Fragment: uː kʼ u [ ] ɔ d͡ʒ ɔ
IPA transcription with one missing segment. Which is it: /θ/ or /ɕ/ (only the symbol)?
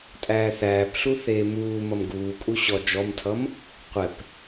ɕ